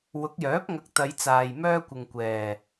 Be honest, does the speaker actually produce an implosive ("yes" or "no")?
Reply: no